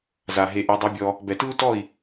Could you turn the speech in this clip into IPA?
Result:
z a˨ ɦ e˧ ʔ ɛ˧ dˤ u˧ bʲ ɔ˧ | b ɛ˨ t ɯ˦ u̯ t ɔ˦˨ i̯

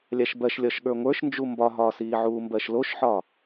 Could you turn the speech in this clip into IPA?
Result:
lʲ a ʃ b ɜ ʃ lʲ ɒ ʃ ɠ ə˞ ŋʷ ə˞ ʃ n d͡ʒ u m b ɒ ɦ ɒː s iː ʕ uː m b ɜ ʃ l o ʃ ħ ɒ

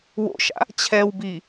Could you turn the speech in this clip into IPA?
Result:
w o̰ ʃ a̰ | t͡ɕʰ ɛ w b i

